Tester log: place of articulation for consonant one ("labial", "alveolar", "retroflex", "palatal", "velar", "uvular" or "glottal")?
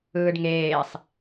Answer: retroflex